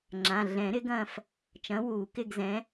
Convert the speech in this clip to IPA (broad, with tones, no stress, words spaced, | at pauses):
ŋ͡ǁã˩˧˩ ɮɛ̃˨˩˦ɾɪ˨˥ɡɐ̃ː˦˨f | t͡ʃɐ̃˨˥wuː˨˩˦ kɪ˦˨ɡzɛ̃˨˥